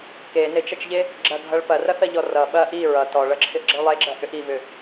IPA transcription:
k e n ɪ t͡ʃ ɐ t͡ʃ ʎ e | ɡ͡ǁ ɐ ɡʱ ʌ ɭ p ɐ r ɐ θ ɐ ʎ ɔ r ʌ ɓ ɐ ʔ i ɹ ʌ t ɔ ɭ ʌ ǁʰ ɪ ʔ ɡ͡ǁ ʌ ɭ lˠ e ɡ͡ǁ ɐ ʔ ʏ ʔ i v ʏ

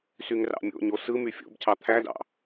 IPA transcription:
s y ŋ r ɑ̰ mʲ o̰ ɲ o s ɯ m y fʲ o̰ b cʰ ɑ t̪ʰ æ d ɑ̰

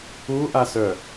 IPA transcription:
u ʔ a s œ

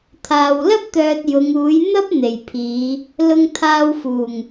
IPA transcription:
t̪ʰ aː˨ w l ɐ˥ p̚ t̪ œː˧ t̚ j ʊ˨˧ ŋ uː˨˥ j n̪ ɐ˥ p̚ n̪ e˨˩ j pʰ iː˨˧ | l ʊ˧ ŋ t̪ʰ aː˧ w f uː˨˩ ŋ

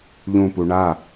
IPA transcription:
ʎ ũ p u ɳ a

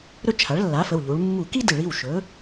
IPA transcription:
ɾ ɵ˥ t͡ʃʰ a˩˥ ɭ lː a˩˥ f ə˩˧˩ w ʎ u˩˧ ɭ mː u˧˩˧ k i˥ d ɨ˧˩˧ ɭ i˩˧˩ w ʃ ɵ˩˥

